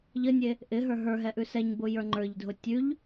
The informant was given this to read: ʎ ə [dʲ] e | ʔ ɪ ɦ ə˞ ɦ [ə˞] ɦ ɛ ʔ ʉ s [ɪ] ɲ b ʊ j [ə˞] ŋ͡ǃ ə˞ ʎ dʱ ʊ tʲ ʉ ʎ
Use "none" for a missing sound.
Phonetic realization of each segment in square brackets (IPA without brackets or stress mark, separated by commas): nʲ, ə˞, ɛ, ə˞